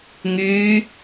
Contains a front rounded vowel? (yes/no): yes